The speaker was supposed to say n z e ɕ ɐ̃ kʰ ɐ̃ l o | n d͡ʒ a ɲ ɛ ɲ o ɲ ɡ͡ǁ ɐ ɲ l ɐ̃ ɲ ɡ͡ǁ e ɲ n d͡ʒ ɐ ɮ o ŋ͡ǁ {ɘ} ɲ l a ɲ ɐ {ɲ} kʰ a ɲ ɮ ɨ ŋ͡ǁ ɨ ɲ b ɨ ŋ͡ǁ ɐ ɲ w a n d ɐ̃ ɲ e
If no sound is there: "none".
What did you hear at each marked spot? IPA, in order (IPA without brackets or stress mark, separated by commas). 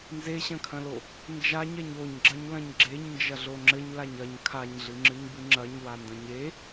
ɘ, ɲ